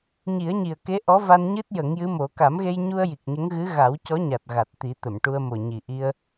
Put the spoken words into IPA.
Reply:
ɲ i˨˩˦ ə̯ ɲ i˨˩ ə̯ k e˧˥ ʔ ɔ˧˥ v a˧ n ɲ ɨ˦˥ t̚ j ə˨˩˦ ŋ j ɨ˧˥ m o˨˩˦ k a˨˩˦ m ɣ e˧ j ɲ u˧ ə̯ j i˨˩ k̚ ɲ ə˧˥ ŋ ɣ ɨ˧˥ ɣ a˨˩˦ w c ɔ˧˥ ɲ a˨˩ t̚ ɣ a˨˩ t̚ t̪ i˨˩˦ t̪ ə˨˩˨ m ʈ u˧ ə̯ m o˨˩ ɲ i˨˩ ʔ i˧ ə̯

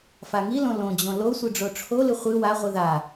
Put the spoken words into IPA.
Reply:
f a ŋ i l õ l õ d͡ʑ õ l o sʷ ɨ ɖ͡ʐ o ʈ͡ʂʰ o l ɨ χʷ ɨ w a ʁʷ ɨ ð a

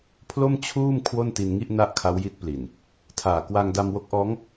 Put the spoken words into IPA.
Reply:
pʰ l o˥˩ m t͡ɕʰ uː˥˩ m kʰ w o˥˩ n t i˧ n ŋ i˥˩ ʔ n a˥˩ ʔ kʰ a˦˥ w j i˦˥ t̚ p l i˨˩ n | tʰ aː˨˩ k w a˧ ŋ d a˧ m w o˦˥ k̚ ʔ ɔː˦˥ ŋ

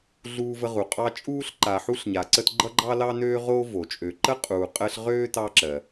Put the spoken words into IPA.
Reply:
ɮ uː˦ v ə˦ ʁ u˩ qʼ ɑ˦ t͡ʃʼ uː˥ ɬ ǃ a˨ ħ u˥ ɬ ɲ a˨ ǀ ə˥ t ɡ͡ǃ ʌ˥ ɡ͡ǃ ɑ˥ l ɑ˥ n øː˥ ʁ o˥ v o˩ t͡ʃʼ ø˨ ǃ ə˥ qʼ uː˨ qʼ əː˦ ɬ ʁ øː˥ t ɑ˦ ǁ ɜ˨

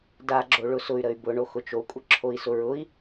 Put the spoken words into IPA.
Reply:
d a ɡ͡ǁ o ɭ ʊ s ʊ y̯ ɾ ə y̯ b ʊ ɳ o x ʊ t͡ʃ o kʷʼ ə ǁʰ o i̯ s ʊ ɹ ʊ i̯

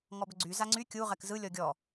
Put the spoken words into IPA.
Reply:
ŋ ɔ b ʏ ɡ͡ǀ y z a ŋ͡ǀ y kʲ u ʁ ɛ k z ɯ lʲ ɔ ɡʲ ɔ

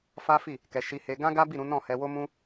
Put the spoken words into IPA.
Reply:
f a˦ f i˦˨ | k ɛ˧ ʃ i˧ h e˧ ɡ ã˦ ɡ a˦ b i˦˨ ɾ ũ˨˦ n ɔ̃˦˨ h ɛ˧ w o˦ m ũ˦

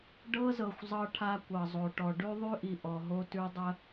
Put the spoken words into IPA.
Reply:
ɖ ɤ˦ z ɤ˨ xʷ zˤ ɤ˦ ʈʰ a˦ kʷ ɤ˨ zˤ o˨ ʈ ɔ˨ ɖ ʉ˦ ðˤ ʉ˦ ʔ i˨ ʔ ɔ˨ ɦ o˦ t ʉ˦ dˤ ə˦

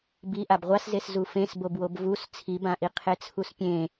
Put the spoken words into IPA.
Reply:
b i ʔ a b ʁʷ a s z e s z u f ẽ s b o b w o b v u s t͡sʰ i b ã ʔ i qʰ e t͡sʰ u s pʲ ẽ

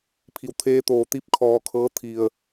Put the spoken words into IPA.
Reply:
pʰ i˩ w t̪ʰ eː˧ t̪ oː˧˩ t̪ i˧˥ p̚ kʰ ɔː˧ kʰ ɤː˧˥ t̪ʰ i˩ ə̯

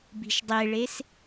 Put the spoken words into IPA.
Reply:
b i̤ ʃ dˤ e ɭ e s

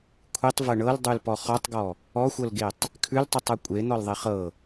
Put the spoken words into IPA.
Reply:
kʷʰ i tˤ v ɤ ɳ ɤ l dˤ ʉ l p ɔ χ ɔ tˤ ɡ ɔ | ɔ xʷ ɤ l ɡ e tˤ | kʰ ʉ l tˤ ʉ tˤ ɤ kʷʼ e n̪ ɔ l ðˤ i χ ɤ

